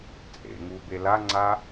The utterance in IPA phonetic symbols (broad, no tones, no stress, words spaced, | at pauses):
t͡sʼḛŋu belaŋ͡ǀa